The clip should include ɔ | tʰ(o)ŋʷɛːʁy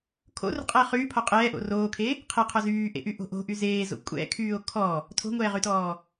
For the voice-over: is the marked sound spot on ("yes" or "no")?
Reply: no